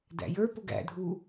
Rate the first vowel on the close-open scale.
open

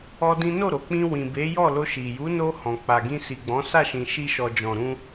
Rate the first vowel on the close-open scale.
mid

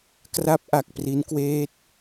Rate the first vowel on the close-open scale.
open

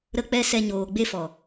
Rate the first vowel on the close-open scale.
mid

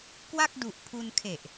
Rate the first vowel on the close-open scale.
open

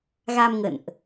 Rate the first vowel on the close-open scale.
open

